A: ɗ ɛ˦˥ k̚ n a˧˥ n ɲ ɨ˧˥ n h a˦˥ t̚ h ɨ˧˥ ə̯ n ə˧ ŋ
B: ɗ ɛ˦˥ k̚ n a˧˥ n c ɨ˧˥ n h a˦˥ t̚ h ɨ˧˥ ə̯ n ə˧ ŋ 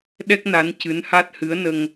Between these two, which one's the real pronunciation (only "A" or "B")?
B